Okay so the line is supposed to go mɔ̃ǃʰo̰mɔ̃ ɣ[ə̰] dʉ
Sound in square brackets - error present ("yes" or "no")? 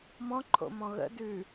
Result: no